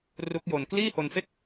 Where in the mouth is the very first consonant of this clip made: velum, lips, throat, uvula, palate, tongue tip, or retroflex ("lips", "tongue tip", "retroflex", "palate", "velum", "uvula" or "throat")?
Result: tongue tip